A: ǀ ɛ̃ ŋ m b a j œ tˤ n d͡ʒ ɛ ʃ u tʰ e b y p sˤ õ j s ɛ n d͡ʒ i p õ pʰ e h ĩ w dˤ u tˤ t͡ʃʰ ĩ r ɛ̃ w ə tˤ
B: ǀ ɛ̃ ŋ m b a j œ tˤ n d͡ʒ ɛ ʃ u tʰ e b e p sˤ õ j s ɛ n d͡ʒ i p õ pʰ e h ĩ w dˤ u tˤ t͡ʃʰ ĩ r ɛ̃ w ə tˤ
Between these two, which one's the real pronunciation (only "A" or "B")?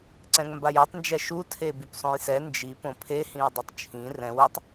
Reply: A